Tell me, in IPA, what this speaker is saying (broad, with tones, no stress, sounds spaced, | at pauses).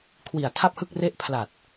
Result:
kʰ w i˨˩ a̯ tʰ a˥˩ p̚ h ɯ˥˩ k̚ r e˥˩ ʔ pʰ l a˨˩ t̚